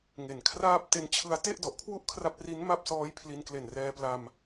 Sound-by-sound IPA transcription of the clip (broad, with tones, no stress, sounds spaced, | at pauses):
ŋ e˨˩ n kʰ r aː˥˩ p̚ t e˧ n t͡ɕʰ ɯ˧ a̯ t e˥˩ ʔ d ɔ˨˩ ʔ kʰ w u˥˩ ʔ kʰ r a˦˥ p̚ r i˦˥ n m a˥˩ p̚ s ɔː˦˥ j pʰ l i˧ n k l e˨˩ n r ɛː˧ p l a˧ m